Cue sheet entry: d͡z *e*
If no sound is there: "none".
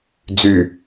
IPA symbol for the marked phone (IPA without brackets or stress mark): y